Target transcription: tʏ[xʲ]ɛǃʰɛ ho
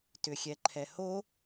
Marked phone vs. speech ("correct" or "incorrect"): correct